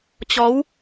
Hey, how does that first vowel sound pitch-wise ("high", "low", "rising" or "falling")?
rising